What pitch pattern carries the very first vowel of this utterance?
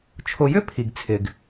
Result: low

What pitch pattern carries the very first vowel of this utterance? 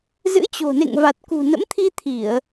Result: rising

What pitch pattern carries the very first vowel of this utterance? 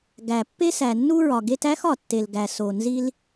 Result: low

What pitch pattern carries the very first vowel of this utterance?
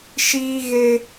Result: high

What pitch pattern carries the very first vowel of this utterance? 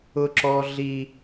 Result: high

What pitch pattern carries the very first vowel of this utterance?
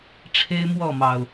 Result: high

